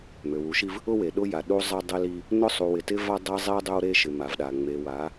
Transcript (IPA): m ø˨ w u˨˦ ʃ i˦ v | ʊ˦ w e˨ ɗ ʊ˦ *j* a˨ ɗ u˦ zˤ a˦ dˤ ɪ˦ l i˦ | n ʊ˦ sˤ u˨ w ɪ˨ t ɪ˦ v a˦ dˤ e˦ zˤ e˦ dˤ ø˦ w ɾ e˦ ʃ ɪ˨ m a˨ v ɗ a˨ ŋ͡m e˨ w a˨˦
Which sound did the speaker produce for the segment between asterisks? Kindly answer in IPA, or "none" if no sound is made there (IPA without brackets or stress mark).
j